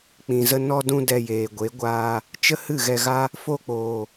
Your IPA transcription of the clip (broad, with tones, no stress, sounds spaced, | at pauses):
k͡p ĩ˨ z ə˧ n ɔ˧ d ũ˧ d ɛ˧ j eː˨ ɡʷ e˨˦ ɡʷ aː˧ | t͡ʃ ə˦ h ɨ˦˨ ɣ ɛ˧ ɣ a˦ | f o˧ k͡p oː˨